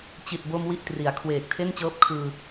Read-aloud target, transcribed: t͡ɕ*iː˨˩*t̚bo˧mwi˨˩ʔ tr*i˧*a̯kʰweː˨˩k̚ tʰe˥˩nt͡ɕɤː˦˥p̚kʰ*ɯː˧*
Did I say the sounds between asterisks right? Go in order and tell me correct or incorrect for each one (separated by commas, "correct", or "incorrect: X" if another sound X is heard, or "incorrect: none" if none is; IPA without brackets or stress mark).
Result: incorrect: i˨˩, incorrect: i˩˦, correct